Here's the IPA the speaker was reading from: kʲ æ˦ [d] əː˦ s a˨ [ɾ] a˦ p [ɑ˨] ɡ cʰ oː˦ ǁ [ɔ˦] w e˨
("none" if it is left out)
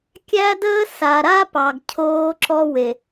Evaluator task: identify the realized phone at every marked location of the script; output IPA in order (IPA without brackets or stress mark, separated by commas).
d, ɾ, ɑ˨, ɔ˦